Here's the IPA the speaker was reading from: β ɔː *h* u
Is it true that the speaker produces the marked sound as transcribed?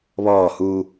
yes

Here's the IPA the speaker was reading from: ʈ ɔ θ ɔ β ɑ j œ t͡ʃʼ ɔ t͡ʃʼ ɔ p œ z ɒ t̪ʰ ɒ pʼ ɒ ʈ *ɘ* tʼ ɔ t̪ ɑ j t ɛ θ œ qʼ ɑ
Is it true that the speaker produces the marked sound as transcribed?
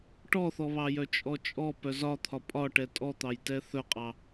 no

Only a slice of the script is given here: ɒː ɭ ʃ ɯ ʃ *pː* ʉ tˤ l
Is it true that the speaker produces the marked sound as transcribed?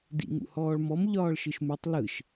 no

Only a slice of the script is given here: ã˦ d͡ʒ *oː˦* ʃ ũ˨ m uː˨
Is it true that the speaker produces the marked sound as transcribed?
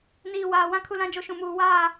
no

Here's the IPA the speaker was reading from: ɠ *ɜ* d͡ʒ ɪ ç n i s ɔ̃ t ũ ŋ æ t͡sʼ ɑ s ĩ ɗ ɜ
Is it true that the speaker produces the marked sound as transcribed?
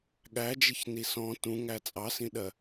no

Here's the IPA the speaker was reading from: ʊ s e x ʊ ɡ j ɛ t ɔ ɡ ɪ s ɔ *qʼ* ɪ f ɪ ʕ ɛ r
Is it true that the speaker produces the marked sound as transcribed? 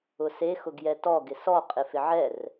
yes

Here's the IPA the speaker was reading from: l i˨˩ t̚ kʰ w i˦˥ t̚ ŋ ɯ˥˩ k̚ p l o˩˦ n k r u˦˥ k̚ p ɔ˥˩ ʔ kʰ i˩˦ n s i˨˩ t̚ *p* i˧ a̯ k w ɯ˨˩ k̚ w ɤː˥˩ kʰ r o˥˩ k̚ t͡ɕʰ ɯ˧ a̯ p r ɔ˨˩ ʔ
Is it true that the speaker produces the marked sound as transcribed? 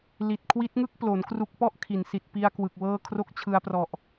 yes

